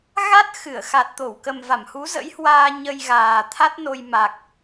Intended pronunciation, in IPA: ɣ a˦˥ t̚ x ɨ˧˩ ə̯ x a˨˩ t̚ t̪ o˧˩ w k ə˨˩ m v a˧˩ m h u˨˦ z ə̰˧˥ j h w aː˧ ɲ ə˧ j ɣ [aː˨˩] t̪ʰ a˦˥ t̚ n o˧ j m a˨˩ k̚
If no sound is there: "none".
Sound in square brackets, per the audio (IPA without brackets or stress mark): aː˨˩